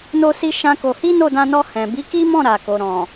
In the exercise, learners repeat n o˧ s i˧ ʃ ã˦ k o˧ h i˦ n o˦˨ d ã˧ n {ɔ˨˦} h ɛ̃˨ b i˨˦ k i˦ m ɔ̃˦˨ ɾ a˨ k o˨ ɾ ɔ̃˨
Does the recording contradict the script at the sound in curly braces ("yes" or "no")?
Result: yes